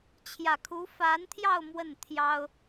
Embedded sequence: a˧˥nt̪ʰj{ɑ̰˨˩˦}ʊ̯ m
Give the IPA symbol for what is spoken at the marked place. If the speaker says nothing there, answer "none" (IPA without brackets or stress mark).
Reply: ɑ˥˧